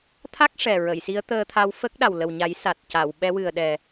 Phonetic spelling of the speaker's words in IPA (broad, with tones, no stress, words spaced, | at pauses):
t̪ʰa˦˥k̚ ʂɛ˨˩ɹə˨˩˨jsi˧˥ə̯ t̪əː˧t̪ʰa˧w fə˦˥k̚ɗa˨˩w lə˨˩wɲa˨˩˦j sa˨˩t̚ ca˨˩˨w ɓɛ˧˥wɨ˨˩ə̯ɗɛ˨˩